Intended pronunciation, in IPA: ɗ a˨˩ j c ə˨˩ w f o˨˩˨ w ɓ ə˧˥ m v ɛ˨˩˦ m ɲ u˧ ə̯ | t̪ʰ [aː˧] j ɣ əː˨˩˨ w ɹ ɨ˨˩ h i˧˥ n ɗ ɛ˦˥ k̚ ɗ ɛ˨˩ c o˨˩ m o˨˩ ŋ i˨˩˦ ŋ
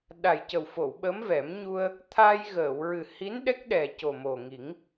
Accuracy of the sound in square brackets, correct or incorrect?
correct